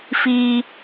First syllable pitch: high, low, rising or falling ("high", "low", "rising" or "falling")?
low